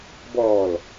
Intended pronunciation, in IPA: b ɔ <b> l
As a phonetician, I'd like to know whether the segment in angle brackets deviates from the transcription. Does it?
yes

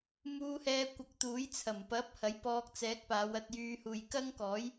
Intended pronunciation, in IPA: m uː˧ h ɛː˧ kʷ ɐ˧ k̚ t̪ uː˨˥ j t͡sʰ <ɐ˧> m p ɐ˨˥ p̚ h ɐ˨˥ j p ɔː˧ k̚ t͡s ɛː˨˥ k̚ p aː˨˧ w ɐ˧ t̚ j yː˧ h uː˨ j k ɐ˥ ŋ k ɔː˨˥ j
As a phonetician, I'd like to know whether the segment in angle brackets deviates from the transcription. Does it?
yes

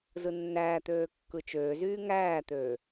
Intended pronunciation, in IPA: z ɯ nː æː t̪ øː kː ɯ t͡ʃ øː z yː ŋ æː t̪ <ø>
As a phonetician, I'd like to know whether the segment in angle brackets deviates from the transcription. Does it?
no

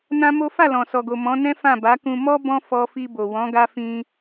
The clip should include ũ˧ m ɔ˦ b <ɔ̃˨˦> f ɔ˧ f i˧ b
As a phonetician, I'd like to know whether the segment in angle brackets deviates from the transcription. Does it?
yes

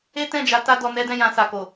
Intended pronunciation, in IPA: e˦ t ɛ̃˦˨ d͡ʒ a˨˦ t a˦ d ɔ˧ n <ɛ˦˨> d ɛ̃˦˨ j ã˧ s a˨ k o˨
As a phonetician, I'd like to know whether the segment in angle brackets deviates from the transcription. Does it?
yes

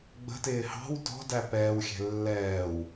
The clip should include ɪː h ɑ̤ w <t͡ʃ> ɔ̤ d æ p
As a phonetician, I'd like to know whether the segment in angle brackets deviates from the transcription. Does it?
yes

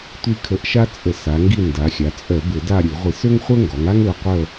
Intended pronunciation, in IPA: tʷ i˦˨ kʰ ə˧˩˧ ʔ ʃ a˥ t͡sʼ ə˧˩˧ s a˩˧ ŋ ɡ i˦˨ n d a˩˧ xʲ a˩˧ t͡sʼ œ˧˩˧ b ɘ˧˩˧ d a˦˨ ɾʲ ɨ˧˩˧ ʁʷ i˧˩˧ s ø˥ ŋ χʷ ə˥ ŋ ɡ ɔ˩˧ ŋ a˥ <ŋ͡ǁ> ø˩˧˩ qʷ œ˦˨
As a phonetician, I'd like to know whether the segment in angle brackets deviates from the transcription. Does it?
yes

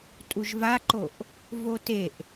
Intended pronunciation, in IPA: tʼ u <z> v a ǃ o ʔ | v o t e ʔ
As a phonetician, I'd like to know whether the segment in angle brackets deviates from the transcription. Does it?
yes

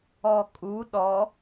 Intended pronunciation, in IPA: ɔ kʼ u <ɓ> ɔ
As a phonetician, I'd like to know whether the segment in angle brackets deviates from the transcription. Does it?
yes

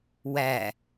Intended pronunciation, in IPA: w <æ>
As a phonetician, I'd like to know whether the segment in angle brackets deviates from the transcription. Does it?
no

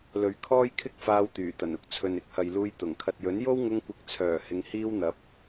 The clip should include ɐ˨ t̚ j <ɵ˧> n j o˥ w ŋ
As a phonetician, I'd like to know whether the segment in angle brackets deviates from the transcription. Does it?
yes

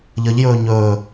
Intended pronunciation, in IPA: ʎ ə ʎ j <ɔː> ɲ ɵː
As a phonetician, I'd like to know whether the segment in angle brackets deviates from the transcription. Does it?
yes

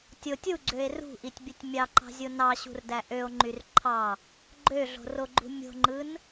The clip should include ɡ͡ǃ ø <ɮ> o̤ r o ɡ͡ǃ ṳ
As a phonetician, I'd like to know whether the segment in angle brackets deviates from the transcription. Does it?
no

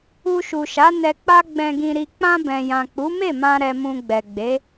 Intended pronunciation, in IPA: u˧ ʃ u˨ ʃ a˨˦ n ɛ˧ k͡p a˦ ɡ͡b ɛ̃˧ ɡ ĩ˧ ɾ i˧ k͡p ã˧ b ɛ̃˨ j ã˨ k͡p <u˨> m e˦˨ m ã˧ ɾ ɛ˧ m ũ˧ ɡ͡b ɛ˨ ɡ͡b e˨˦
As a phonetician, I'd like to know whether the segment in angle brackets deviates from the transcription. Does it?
yes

